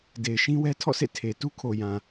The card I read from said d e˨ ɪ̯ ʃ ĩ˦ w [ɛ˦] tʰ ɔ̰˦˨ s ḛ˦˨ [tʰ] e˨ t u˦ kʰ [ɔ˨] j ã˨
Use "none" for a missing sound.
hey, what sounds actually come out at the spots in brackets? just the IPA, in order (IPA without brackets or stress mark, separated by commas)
ɛ˦, tʰ, o˨